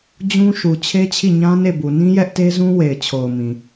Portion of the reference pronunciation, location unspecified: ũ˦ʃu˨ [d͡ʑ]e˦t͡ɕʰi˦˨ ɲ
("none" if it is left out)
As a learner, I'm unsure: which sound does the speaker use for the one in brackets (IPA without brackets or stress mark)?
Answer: t͡ɕʰ